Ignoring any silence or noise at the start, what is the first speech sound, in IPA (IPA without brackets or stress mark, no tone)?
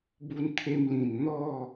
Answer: b